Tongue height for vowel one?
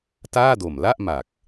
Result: low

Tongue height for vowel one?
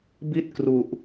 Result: high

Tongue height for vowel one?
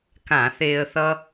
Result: low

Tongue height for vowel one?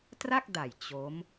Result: low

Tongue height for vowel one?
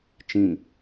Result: high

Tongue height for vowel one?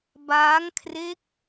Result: low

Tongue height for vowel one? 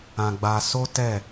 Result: low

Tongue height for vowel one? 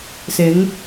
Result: high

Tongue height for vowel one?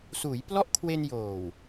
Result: high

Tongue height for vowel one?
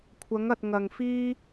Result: low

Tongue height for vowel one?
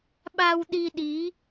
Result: low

